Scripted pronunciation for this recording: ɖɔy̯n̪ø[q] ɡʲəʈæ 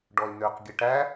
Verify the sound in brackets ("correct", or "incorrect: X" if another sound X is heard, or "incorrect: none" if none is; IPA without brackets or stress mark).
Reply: correct